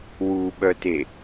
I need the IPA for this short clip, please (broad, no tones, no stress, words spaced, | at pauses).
wuɓœte